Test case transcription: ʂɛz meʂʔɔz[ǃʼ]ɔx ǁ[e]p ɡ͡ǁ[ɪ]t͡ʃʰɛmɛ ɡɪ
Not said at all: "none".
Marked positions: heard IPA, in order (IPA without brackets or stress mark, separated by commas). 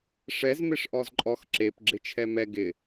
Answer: ǃʼ, e, ɪ